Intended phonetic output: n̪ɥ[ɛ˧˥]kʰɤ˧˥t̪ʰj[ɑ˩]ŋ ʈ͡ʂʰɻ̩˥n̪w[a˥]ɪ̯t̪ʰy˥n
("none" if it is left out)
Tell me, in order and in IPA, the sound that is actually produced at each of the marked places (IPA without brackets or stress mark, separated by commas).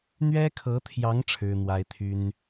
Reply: ɛ˥, ɑ˧˥, a˥